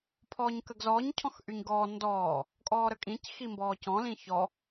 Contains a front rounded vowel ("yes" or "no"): yes